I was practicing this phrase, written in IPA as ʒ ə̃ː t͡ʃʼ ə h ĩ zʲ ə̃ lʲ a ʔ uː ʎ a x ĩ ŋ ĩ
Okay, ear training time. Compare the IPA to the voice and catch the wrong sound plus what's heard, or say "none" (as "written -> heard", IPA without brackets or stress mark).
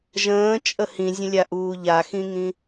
none